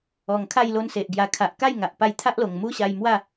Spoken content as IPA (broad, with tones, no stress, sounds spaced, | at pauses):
ɔ˨˩ ŋ kʰ a˥˧ j l o˧ n s e˨ ʔ ɡ j a˨˩ kʰ a˨ ʔ k a˥˧ j ŋ a˨ ʔ p a˧ j t̪ʰ a˦ ʔ l o˨˩ ŋ m u˦ ɕ a˧ j m w a˥˧